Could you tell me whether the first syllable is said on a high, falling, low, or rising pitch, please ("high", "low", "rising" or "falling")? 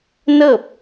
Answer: falling